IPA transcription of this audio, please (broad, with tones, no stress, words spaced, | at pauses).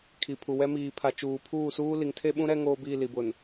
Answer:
kʰi˨pʰu˨ wɛ˦miː˨pʰa˨ t͡ʃuː˨pʰuː˦˨suː˦ li˨ŋtʰe˦ɓũ˦ ɾɛ˦ ŋoː˦biː˦˨li˨bʊ˨n